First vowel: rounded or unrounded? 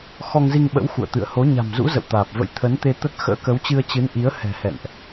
rounded